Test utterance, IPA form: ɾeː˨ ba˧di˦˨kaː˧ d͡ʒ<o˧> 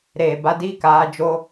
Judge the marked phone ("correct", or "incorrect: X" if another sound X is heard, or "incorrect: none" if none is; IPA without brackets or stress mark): correct